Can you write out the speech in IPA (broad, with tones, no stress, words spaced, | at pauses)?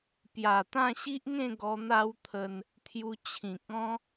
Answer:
pja˨˩ t̪ã˥˧ɕi˦ʔŋẽ˥˧ɡɔ˧ n̪a˦wt̪ʰə˧n | t̪ʰju˧t͡ɕʰĩ˨k̚ ɔ̃˦